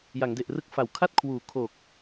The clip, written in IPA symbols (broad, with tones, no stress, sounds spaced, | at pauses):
j a˩˦ ŋ d e˨˩ ʔ r ɯ˦˥ k̚ f a˨˩ w kʰ a˥˩ t̚ kʰ w uː˨˩ kʰ o˨˩ k̚